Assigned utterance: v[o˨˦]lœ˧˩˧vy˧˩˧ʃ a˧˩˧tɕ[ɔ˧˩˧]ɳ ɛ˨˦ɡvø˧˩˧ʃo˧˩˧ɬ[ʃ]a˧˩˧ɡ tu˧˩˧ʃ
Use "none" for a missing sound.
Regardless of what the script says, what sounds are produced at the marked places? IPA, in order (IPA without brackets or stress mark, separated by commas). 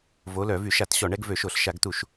o˨˦, ɔ˧˩˧, ʃ